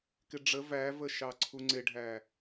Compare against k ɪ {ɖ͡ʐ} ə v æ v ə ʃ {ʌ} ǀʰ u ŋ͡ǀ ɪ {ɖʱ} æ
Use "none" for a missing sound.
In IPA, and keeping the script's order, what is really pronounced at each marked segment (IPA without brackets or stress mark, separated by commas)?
ɖ͡ʐ, ɑ, ɖʱ